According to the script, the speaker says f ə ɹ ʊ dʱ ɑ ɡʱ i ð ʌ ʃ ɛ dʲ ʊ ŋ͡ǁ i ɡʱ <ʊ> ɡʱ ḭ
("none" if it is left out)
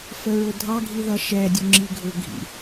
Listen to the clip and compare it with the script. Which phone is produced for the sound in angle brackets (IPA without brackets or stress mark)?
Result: ʊ